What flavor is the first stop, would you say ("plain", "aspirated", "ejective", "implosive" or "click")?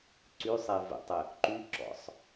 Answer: click